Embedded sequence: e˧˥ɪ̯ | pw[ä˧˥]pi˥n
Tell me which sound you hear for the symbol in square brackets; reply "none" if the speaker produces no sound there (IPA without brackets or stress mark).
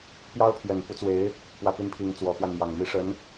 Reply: ä˥˩